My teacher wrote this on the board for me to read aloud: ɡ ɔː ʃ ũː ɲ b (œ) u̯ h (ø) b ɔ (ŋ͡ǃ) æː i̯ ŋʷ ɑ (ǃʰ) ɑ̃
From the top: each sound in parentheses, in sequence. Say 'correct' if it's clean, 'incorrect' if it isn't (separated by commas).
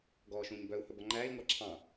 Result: correct, incorrect, correct, incorrect